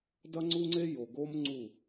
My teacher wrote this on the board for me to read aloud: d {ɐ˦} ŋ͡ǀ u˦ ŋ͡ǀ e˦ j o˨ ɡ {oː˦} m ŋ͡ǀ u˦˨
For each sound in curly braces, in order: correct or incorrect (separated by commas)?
correct, incorrect